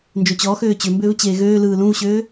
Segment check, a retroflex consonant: absent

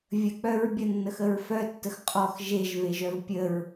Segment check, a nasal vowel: absent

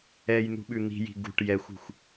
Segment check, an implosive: present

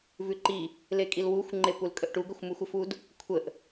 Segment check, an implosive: absent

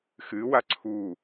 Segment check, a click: present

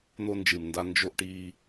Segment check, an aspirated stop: absent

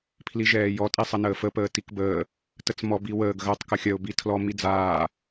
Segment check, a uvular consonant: absent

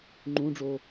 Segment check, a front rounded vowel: absent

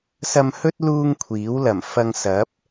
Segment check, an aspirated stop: present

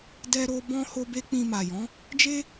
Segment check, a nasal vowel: present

